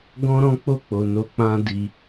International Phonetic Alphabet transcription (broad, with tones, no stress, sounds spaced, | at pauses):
ɡ ɔ̃˦ ɾ ɔ̃˦ k͡p o˦˨ k͡p o˨ n o˧ k͡p ã˦ d i˧